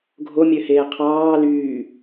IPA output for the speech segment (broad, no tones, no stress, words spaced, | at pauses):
ɡʱomʲøheː qʰɑː lyː